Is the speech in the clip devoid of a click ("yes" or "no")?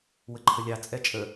no